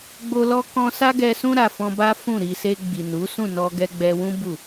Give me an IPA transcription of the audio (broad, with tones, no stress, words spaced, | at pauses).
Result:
ɡ͡bo˧ lɔ˧kɔ̃˧ sa˦ɡɛ˧sũ˦ ɾa˧fɔ̃˦ ba˦fũ˦˨ɾi˧ se˧ɡ͡bi˨nu˨˦ sũ˦˨nɔ˧ɡɛ˧ ɡ͡bɛ˧wũ˦ bu˦˨